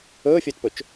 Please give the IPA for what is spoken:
ɵː fʲ ɵː t p ɵ t͡ʃ

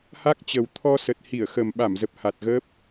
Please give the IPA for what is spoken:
h a˦˥ k̚ t͡ɕ ə˨˩ w t̪ʰ ɔ˧ s ə˨˩ t̚ h i˧˩ ə̯ x ə˨˩ m ɓ a˧˩ m z ə˨˩ p̚ h a˨˩ t̚ ɣ əː˦˥ p̚

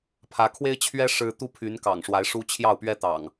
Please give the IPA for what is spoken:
pʰ ä˨˦ kʰ w e˦ ɪ̯ t͡ɕʰ ɥ ɛ˦ ʂ ɻ̩˦ t̪ u˦ pʰ y˨˦ n k ɑ̰˨˩ ŋ ʂ w a˨˦ ɪ̯ ʂ u˦ t͡ɕʰ j ɑ˥˨ ʊ̯ p ɥ ɛ˦ t̪ ɑ̰˨˩ ŋ

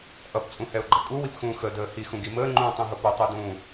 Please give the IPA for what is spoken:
ʔ ʌ p t͡sʼ ũ h ɛ ʊ̯ ɡ͡ǃ ʌ kʼ u w i p x ũː x ə d əː h i x ũ ɡ i m əː ŋ͡ǃ ũː tˤ ũ ɦ ʊ p ʊ tˤ u d ũː

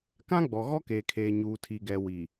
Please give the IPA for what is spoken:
k ã˦ ɡ͡b ɔ˨ ɣ ɔ˦ k eː˨ kʰ eː˨ ɲ uː˨ tʰ i˨ ɡ ɛ˨ w i˨

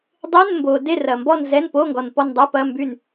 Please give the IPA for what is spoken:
dˤ e˧˥˧ n m b o˨ d e˦˨ r ɐ˨ m b ɔ˦˨ n z ɛ˧˥˧ n p o˧˥˧ ŋ ɡ ɔ˨ n p ɔ˦˨ n dˤ ɛ˧˥˧ p ɐ˧˥˧ m b y˦˨ n

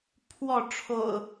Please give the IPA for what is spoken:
pʰ w ɔ˥˨ ʈ͡ʂʰ o̰˨˩ ʊ̯

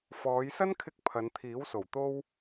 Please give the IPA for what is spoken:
f ɔː˨˧ j s ɐ˥ n kʰ ɪ˧ k̚ pʰ ɐ˨˧ n t̪ʰ iː˨˥ w s o˨˩ w t̪ o˥ w

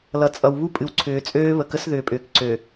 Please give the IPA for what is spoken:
l ʌ˨ t͡sʼ ʌ˨ w β u˦ pʼ ɨ˨ w ǀʰ ʏː˨ t͡sʼ øː˦ β ə˨ k ə˦ s ð ʏː˨ pʼ ʏː˨ k ǀ ø˨

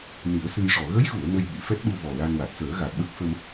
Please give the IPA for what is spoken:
n i˨˩˦ ə̯ s ɨ˧ j ʂ ɔ˨˩ ɣ ə˧˥ j ɣ u˨˩˨ ə̯ n ə˧ j ɓ i˨˩˨ f ɛ˦˥ t̚ ɗ u˧ v ɔ˨˩ l a˧ n w a˨˩ t̚ s əː˨˩˦ ɣ a˨˩ k̚ ɓ ə˦˥ k̚ f ə˧ m

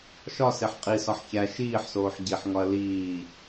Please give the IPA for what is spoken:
ʃ ɒ s e ħ qʼ i s ɒ ħ ç æ ʃ iː ħ s oː ħ ɟ i ħ ŋ ɒ ɐ̯ l iː

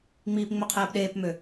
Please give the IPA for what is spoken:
ŋ͡m iː p ŋ͡m ø qʰ eː p ɗ eː p m ø

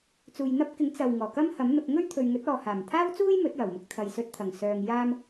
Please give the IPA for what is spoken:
t͡s uː˨ j n̪ ɐ˥ p̚ k ɪ˨˥ ŋ t͡s ɐ˨ w ŋ ɔː˨˩ k ɐ˥ m h ɐ˨˥ m n̪ ʊ˧ k̚ ŋ ɵ˥ ɥ t̪ʰ ɵ˨ ɥ ŋ ɵ˨˥ t̚ ɔː˨ h aː˨˩ m t̪ʰ aː˥ w t͡s uː˥ j m ɵ˨˥ t̚ j ɐ˨˩ w m ʊ˧ k̚ t̪ʰ ɐ˨ j s ɵ˧ t̚ t̪ʰ ɐ˨˩ ŋ s œː˨ ŋ j aː˥ m

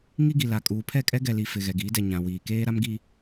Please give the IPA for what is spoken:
ŋ i˦ ɡ i˨ l a˨ kʼ uː˨ pʰ ɛ˦˨ kʼ ɛ˦ ɡ ɛ˨ l i˨ f ɪ˨ ɣ ɛ˨ ɡ iː˨˦ d ɛ˨ ɲ ã˨ w iː˨ k eː˦ ɾ a˦ m ɡ i˦

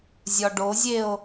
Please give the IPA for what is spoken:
zʲ ɒ ɖ o zʲ e o̯

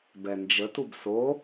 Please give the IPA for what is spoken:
b ɛ n d͡ʒ ə t u b s o

